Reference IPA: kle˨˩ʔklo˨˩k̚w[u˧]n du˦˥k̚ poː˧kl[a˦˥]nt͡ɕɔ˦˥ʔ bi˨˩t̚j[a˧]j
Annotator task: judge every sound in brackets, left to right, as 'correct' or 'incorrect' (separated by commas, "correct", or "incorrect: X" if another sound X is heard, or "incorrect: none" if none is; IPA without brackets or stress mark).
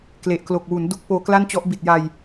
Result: incorrect: u˩˦, incorrect: a˥˩, correct